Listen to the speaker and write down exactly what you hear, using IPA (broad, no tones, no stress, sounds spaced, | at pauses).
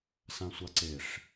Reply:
s ã sʷ a ǀ e ʂ